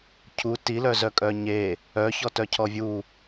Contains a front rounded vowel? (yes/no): yes